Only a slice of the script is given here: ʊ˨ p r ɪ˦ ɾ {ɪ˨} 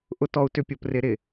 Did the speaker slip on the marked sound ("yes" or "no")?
no